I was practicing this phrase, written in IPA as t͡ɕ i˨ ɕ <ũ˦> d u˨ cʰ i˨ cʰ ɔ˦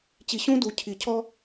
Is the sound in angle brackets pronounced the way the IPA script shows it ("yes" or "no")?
yes